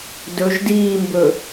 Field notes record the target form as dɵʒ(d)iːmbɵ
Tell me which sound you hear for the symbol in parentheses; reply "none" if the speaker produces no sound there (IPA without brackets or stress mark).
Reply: d